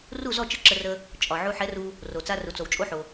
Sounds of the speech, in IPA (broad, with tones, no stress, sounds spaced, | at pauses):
r u˥˨ z ɔ˥˨ t͡ʃ ə˥˨ ǁ ə˧ r ə˧ | t͡ʃʼ ɒ˩ ʕ u˧ ħ ɛ˨˥ r u˧ | r o˩ t͡s a˧ r u˩ t͡s o˩ w t͡ʃʼ o˧ ħ o˩